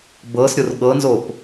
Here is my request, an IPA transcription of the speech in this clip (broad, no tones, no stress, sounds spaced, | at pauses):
b ɤ s ɾʲ o r ɠ ɤ n z o p